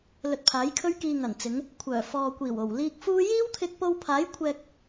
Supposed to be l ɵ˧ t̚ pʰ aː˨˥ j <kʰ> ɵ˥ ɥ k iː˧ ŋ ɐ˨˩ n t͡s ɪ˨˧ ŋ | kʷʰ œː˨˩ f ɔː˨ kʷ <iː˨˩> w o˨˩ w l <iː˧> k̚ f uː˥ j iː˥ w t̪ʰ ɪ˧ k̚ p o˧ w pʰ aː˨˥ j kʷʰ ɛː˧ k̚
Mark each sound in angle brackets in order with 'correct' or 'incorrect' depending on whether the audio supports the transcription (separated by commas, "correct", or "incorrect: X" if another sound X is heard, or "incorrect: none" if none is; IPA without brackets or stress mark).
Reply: correct, correct, correct